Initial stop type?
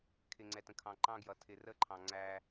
aspirated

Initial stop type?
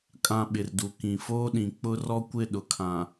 ejective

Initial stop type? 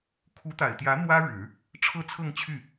aspirated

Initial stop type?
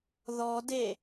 plain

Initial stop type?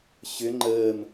click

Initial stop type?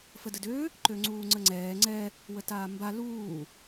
plain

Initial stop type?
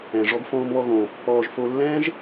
plain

